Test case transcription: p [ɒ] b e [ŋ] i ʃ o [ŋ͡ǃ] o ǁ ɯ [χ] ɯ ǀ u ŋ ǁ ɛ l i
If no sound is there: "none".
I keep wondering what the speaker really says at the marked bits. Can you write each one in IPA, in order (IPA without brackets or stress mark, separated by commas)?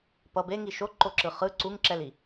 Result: ʌ, ŋ, ǃ, χ